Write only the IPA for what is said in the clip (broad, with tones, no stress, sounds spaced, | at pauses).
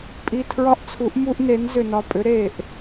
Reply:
pʼ i˧˩ tʰ ɹ ɒ˦ ʔ t͡sʰ u˨˥ ʔ m u˦ ʔ n e˨˥ n z ʏ˧˩ n ɒ˧˩ pʼ ʏ˨˥ ɾ e˧˩ ʔ